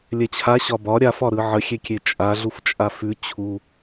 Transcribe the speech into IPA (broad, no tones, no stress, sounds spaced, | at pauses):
lʲ ɛ t͡ɕʰ a ɕ ɒ b ɒ ɾʲ a f ɒ ɾ ɯ ʕ ə xʲ e kʲ e t͡ʃʼ a ɮ u f t͡ʃʼ a f ʉ t͡ɕʰ u